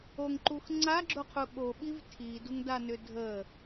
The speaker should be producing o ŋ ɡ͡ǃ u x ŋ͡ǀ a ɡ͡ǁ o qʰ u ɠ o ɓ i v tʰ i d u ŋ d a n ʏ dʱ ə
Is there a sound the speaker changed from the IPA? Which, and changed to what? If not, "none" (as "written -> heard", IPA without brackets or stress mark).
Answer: ɡ͡ǃ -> ǃ